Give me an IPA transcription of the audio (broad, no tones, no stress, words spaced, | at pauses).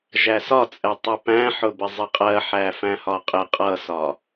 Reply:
ʒæsɒt͡sʼɛ tˤʊpæ̃ħʊbɪ zˤɪqʼɜ ħæfæ̃hɒqʼɪ qʼʌsɒ